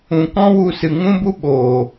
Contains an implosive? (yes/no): yes